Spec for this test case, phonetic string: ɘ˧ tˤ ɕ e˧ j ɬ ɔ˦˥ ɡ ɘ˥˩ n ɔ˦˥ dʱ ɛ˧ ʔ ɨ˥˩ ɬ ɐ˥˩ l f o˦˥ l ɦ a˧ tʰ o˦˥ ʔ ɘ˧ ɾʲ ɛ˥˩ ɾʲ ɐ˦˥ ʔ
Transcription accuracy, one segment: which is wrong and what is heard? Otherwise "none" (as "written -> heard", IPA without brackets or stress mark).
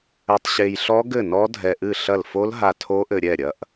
none